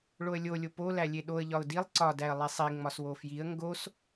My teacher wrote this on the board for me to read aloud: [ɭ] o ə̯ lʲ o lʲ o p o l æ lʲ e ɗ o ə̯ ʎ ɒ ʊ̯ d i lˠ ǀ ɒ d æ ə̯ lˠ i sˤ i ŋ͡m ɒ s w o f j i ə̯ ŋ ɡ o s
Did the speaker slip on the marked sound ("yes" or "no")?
no